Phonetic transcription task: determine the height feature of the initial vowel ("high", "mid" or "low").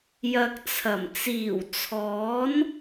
low